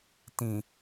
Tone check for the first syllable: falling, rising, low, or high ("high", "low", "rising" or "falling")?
low